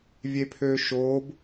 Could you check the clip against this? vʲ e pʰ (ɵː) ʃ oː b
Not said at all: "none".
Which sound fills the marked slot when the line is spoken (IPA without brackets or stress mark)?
øː